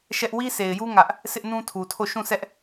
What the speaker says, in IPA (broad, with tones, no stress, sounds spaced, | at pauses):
ʃ ɛ˦ ʔ w i˦ sʰ e˨ ɪ̯ j u˦ ŋ ä˦ ʔ | s ɪ˦ ʔ n ũ˦ tʰ u˨ tʰ o˦˨ ʃ ũ˦˨ s ɛ˦ ʔ